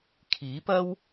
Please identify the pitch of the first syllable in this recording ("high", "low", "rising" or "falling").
rising